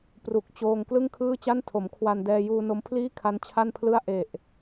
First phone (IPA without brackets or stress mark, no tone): p